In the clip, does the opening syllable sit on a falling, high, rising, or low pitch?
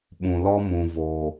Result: low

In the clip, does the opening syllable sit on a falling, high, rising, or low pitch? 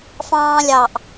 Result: high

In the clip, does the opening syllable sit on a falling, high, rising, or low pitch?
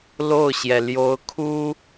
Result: falling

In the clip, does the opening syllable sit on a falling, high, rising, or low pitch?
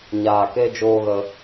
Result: low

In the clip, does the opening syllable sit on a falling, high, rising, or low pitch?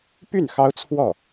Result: falling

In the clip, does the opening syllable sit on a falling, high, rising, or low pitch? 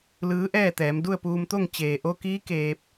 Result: rising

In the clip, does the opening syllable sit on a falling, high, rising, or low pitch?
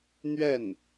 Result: falling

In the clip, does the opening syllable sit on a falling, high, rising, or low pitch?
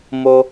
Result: high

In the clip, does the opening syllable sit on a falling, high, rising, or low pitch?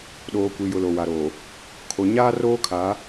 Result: low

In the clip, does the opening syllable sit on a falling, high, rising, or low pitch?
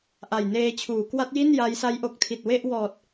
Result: low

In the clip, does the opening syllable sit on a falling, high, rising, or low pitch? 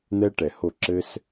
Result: high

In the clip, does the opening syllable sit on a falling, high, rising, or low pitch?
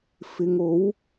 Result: low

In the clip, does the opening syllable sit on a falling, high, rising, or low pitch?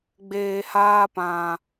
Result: low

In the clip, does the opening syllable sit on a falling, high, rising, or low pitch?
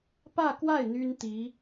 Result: falling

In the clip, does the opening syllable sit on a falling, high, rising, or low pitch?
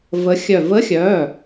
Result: rising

